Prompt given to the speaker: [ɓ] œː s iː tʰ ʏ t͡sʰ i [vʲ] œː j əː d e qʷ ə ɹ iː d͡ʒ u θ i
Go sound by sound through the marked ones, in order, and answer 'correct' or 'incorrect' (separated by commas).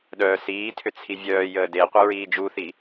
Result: incorrect, correct